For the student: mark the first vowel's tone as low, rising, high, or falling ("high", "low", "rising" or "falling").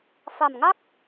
low